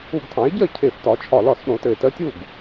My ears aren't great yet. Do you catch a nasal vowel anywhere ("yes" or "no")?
yes